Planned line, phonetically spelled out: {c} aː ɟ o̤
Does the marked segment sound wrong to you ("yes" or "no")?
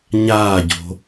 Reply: yes